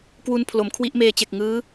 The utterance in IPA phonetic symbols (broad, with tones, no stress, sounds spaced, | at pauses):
k w u˧ n pʰ l o˩˦ m kʰ w i˦˥ ʔ m eː˧ t͡ɕ e˨˩ k̚ ŋ ɯː˦˥